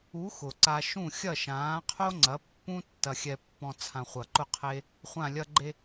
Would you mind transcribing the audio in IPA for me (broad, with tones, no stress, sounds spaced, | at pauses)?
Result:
u˨˥ x ʊ˩ ǀ a˧ ʃ ũ˥˨ xʲ ɐ˥˨ ʃ ãː˨˥ qʰ o˥ ŋ͡ǀ ɐ˨˥ pː ũ˥ tː ɐ˧ xʲ ɛ˧ pː ɔ̃˧ t͡sʰ ã˧ χʷ ɐ˧˩ ǃ ʊ˥˨ qʰ e˥ | χʷ ã˧˩ lʲ ɐ˧ ɡ͡ǃ e˧